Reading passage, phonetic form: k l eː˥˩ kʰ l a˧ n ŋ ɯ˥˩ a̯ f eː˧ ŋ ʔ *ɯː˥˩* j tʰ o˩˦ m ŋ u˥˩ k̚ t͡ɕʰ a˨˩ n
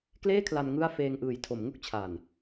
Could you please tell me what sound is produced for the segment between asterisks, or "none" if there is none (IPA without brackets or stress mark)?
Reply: ɯː˨˩